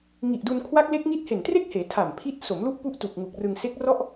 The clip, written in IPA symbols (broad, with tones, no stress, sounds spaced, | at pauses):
ŋ i˨˩ ʔ d u˧ n kʰ w a˦˥ k̚ l e˦˥ k̚ ŋ i˦˥ t̚ h e˨˩ n t r e˥˩ k̚ h eː˩˦ tʰ a˨˩ m pʰ i˦˥ t̚ s o˩˦ m l u˦˥ ʔ p u˦˥ ʔ t u˨˩ k̚ ŋ u˨˩ k̚ r ɯ˧ ŋ s e˦˥ k̚ r ɔ˥˩ ʔ